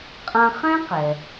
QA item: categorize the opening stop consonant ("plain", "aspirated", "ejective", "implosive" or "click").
ejective